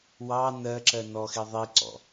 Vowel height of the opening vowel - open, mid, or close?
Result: open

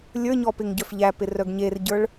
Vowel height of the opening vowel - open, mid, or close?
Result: mid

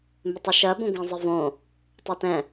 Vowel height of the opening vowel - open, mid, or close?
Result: close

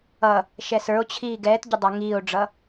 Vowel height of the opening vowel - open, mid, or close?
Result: mid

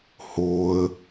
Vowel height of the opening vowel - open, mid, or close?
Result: mid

